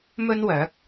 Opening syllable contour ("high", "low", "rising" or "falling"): high